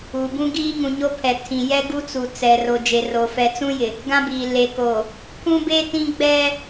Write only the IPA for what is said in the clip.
uː˨bũ˦ ɡiː˦ŋũ˨ɲo˦ pʰɛ˨tʰĩ˨jɛ˦ ɡu˦t͡su˨ t͡sɛ˨ro˨ d͡ʒe˨ro˨ fɛ˨t͡sũ˦jɪ˨ | ɡã˦biː˨ le˨koː˨ | pʰũ˦be˦ tĩ˦ɡ͡bɛ˦

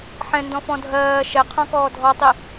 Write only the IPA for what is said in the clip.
ħɛ̃ndɔ̃fɔ̃ dʱɜː ʃɛqʰɔ̃kɔː dʱɔtˤi

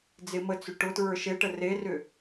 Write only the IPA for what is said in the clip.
d͡zɪmət͡sʏ ʈʊtɹə˞ ʃeʈə rerʏ

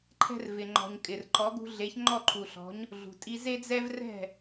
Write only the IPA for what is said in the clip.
ǃʰɛ̤˧rvɪ˩ŋ͡ǃɔ̤˩ɲ kʼɪ˩rǃɔ˩˥ɡṳ˧ ɮe˩˥ç ŋ͡ǃɔ˥˩ǃʰu˩ɬɔ̤˩˥ɲ | ɮṳ˩ tʼi˧ze˥d͡zɛ˥v rɛ̤˥˩

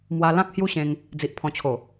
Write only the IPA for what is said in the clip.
mwa˧lã˦k̚ hju˦ɕẽ˧ŋ | d͡zi˨ʔ pʰɔ̃˨˩t͡ɕʰo˨˩

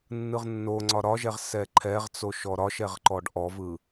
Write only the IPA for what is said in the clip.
nːɯʁnːoŋ͡ǀɒ ɾɒʒɛʁ sɛǃʰɛʁt͡so ʃɔɾɒʃɛʁ ǃɔɖʔɔvɯ

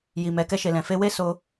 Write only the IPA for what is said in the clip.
ji˨mɛ˨ kɛ˧ʃe˨lɛ̃˨fe˧ we˦so˧

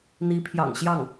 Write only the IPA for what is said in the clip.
n̪i˧˥pʰjɑ̰˨˩ŋɕjɑ˥˩ŋ

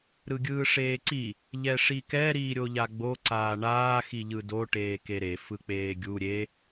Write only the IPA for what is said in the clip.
ɾɯɡʲɯːʂeːǀi | ʎɛʂikɛ ɾiːɾʲoʎaɡ͡bo ǀaːɳaː xiʎɯdo ʈeːkeɾe fɯk͡peːɡʲu ɾʲe

